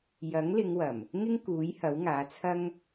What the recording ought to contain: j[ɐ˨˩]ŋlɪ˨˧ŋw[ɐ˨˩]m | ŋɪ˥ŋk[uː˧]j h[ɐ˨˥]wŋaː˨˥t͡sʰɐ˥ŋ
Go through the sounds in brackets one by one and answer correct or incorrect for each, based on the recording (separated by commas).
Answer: incorrect, correct, incorrect, correct